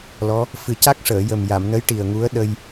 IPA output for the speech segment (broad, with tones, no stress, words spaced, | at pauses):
lɔ˧˥ | fɨ˨˩ca˦˥k̚ʂəː˨˩˨jə˨˩m ja˨˩˨mnə˧˥jʈi˨˩ə̯ ŋu˧˥ə̯ ɗə˧j